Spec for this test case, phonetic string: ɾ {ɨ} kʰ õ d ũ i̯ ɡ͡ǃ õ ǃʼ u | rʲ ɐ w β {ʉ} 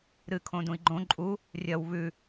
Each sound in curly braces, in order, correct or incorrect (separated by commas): correct, correct